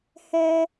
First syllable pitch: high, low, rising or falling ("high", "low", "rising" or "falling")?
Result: high